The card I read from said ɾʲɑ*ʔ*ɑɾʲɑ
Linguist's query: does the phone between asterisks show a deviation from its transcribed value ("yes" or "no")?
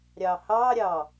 yes